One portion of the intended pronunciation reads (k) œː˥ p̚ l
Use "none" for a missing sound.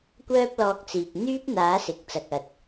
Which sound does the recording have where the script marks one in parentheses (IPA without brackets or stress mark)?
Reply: kʷ